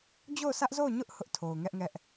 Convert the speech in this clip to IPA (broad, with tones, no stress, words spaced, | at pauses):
d͡ʑo˦˨ʊ̯sʰä˦ʔzo˦˨ʊ̯ɲʊ˦ʔ hʊ˦ʔtʰo˨ʊ̯ŋɛ˦ʔŋɛ˦ʔ